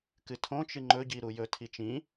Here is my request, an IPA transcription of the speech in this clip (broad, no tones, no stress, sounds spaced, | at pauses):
k ɨ tʰ õ t͡ʃ ɨ ŋ͡ǃ ɵ ɟ i ɾ u j ɵ tʰ i t͡ʃ ĩ